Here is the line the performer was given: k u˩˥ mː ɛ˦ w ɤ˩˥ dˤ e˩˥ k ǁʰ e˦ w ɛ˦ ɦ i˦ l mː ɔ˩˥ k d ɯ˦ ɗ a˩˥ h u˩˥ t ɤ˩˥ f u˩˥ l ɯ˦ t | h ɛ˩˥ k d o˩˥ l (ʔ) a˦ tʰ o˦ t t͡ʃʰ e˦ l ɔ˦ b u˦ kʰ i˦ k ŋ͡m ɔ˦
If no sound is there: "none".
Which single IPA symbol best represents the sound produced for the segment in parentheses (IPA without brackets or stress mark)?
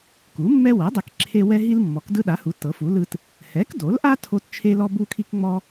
ʔ